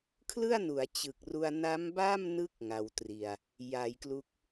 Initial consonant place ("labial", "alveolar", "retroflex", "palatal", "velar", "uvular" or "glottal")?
velar